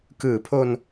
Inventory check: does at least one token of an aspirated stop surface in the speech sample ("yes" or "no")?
yes